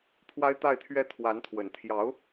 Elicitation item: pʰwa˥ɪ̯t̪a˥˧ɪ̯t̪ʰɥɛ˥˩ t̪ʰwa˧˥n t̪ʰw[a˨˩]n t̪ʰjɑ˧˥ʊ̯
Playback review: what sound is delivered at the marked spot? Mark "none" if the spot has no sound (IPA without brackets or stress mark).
ə˨˩